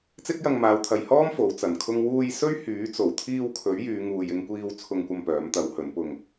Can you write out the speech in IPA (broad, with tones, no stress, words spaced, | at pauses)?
t͡sɪ˥k̚jɐ˧ŋmaː˨˧wt̪ʰɐ˨j hɔː˥m fo˨˥wt͡sɐ˨˧nkʰʊ˥ŋ wuː˧j sɵ˥ɥhyː˨˥t͡so˨˩w t̪ʰiː˧w kʰɵ˨˥ɥjyː˨˧ŋuː˨j ɪ˧ŋkʷiː˧w t͡sʰʊ˧ŋkʷɐ˧m pœː˨˥mt̪ɐ˨˥whɵ˨˥npʊ˧ŋ